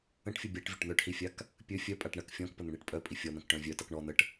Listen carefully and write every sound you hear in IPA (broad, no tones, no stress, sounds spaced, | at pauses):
ə̃ ʈ fʲ ə bʲ a ʈ vʲ ə ʈ n̪ œ ʈ h i fʲ a k | pʲ ɵ fʲ œ pʼ a ʈ ɳ ɐ k fʲ ɔ̃ k p ə n̪ ə̃ ɳ i ʈ pʼ œ pʼ i fʲ ɔ n̪ ɐ̃ k ʈ œ̃ vʲ œ t ʌ k ɳ ɔ n̪ ə ʈ